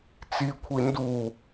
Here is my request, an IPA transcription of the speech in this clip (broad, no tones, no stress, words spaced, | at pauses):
t͡sikʷʰi ndu